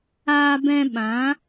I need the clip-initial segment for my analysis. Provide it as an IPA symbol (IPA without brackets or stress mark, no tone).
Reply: aː